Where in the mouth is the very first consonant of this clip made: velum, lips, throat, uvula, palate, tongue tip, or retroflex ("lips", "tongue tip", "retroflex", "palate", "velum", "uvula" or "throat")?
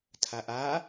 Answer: tongue tip